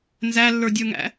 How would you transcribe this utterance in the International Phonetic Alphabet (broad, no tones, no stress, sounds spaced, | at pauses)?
n z æ lː ə˞ dʲ ə˞ ŋ æ̰